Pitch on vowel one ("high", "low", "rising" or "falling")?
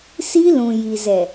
high